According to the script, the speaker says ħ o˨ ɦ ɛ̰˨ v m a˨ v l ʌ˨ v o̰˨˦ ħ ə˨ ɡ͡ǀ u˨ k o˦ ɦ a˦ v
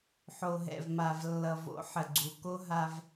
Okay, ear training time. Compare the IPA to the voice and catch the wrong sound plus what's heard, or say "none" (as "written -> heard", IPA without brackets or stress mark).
l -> lː